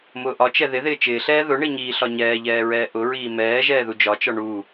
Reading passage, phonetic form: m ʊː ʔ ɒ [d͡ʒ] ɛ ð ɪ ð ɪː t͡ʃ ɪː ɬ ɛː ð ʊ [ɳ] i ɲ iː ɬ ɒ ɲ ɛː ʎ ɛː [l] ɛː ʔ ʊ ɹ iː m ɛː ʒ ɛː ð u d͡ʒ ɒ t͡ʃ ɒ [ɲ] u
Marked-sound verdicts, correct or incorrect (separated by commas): incorrect, correct, incorrect, incorrect